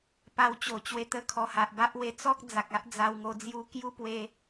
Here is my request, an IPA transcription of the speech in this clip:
p a˧ w t͡ɕ o˨˩ t͡ɕ w e˧ t̪ ə˧ kʰ ɔ˨˩ h a˨ ʔ b a˦ ʔ w e˧ t͡s ɔ˦ k̚ d͡z a˨ k̚ a˦ ʔ d͡z a˧ w ŋ o˧ d͡z j u˧ k j u˦ p w e˧

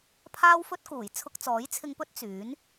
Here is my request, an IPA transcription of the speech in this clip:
pʰ aː˥ w f ɵ˥ t̚ k uː˨˩ j t͡sʰ ʊ˧ k̚ t͡s ɔː˨˥ j t͡sʰ ɪ˧ ŋ p ɵ˥ t̚ t͡s yː˨˥ n

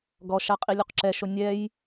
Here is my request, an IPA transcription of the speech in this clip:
ɡ ɔ ʃ a qʼ i lʲ u q ǁ ɛ ʃ o nʲ ɛ j

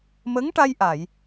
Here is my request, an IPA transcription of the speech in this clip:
m ə˧˥ ŋ ʈ a˧ j ʔ a˨˩˨ j

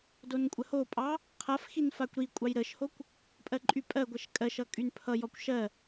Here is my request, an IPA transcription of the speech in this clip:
d o n kʷʼ ə h o pʼ ɑ | qʰ a f x i n f a kʷ ɾ i kʷʼ ɑ j ɾ ə ʃ h o kʷ | pʼ ɜ ǃʼ y pʼ ɜ ɡʷ ɜ ʃ kʼ ɜ ʃ ʌ kʼ y n pʰ ʌ j ɔ kʷ ʃ ɜ

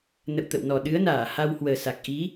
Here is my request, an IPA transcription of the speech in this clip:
n ə̰˧˨ w t̪ ə̰˧˨ w n ɔ˨˩ ɗ ɨ˨˦ ə̯ n aː˧˩ h a˧ w h w əː˨˩ s a˨˩ k̚ ʔ i˨˦

